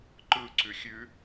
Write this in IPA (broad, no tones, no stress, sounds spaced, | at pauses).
ǃ ɯ ǀ ʉ xʲ ʉ